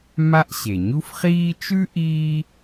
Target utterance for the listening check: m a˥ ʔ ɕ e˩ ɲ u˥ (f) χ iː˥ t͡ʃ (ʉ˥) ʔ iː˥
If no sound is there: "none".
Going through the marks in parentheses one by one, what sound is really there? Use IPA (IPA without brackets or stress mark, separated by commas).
f, ʉ˥